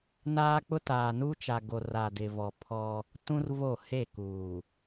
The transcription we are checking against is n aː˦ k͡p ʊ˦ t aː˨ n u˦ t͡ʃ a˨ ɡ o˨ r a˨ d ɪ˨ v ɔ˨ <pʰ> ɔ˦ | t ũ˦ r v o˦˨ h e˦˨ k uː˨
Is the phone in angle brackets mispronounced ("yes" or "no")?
no